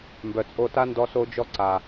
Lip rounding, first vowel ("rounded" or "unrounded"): rounded